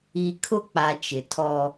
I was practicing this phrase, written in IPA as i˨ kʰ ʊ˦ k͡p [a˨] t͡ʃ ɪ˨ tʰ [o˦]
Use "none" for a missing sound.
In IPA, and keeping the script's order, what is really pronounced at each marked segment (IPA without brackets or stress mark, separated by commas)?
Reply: a˨, ɔ˦